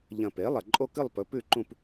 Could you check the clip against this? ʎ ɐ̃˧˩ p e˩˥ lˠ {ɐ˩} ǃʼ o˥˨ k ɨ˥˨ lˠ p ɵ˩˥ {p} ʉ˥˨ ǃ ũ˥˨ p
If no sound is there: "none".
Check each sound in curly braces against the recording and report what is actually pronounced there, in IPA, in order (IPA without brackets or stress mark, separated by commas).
ɐ˩, p